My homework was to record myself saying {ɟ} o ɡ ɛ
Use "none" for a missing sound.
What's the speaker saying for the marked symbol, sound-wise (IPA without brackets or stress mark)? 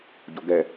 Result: ɟ